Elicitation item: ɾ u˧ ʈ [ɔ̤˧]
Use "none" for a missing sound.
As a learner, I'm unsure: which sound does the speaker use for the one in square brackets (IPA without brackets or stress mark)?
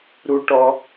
ɔ˧